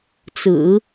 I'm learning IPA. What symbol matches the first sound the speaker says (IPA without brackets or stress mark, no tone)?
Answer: t͡s